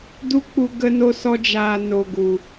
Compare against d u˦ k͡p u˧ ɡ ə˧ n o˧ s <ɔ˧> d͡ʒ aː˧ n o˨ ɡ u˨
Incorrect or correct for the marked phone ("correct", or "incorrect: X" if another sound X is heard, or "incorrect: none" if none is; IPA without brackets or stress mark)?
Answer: correct